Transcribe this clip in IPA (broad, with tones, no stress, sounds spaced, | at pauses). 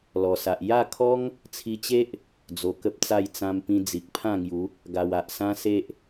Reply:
l ɔ˨˩ s a˨ ʔ j a˥˧ kʰ ɔ˦ ŋ | t͡sʰ i˧ t͡ɕ e˦ ʔ | d͡z o˧ k ə˦ p̚ t͡s a˥˧ j t͡s ã˧ m p ĩ˧ d͡z i˨ k̚ pʰ ã˥˧ ŋ j u˨˦ | ɡ a˨˩ w a˨ ʔ s ã˦ s e˦ ʔ